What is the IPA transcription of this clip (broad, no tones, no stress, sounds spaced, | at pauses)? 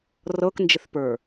r ɤ k n d͡ʒ ɪ θ p ə˞